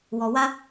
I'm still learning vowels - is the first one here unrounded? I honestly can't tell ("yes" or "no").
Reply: no